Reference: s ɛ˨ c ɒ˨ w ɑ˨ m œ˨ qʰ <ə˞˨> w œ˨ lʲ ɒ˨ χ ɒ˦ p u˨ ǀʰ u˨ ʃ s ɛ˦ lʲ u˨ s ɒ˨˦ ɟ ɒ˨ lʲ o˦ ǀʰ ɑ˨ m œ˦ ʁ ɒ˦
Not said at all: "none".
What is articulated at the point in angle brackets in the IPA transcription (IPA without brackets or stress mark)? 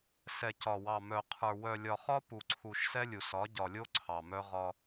ə˞˨